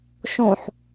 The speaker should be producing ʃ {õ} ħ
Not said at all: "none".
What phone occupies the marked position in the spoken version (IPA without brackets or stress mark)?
õ